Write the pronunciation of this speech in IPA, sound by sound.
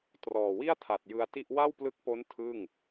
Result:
t r ɔː˨˩ w i˥˩ a̯ tʰ a˨˩ t̚ j ɯ˧ a̯ t i˥˩ ʔ w a˥˩ w p l ɯ˦˥ k̚ p o˦˥ n tʰ ɯ˥˩ ŋ

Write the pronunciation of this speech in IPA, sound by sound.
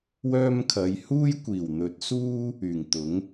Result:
w œː˥ m kʰ ɐ˨˧ j h uː˥ j kʷ iː˨˩ w n̪ ɵ˨˥ t̚ s uː˥ | yː˨˩ ŋ t̪ ʊ˨˥ ŋ

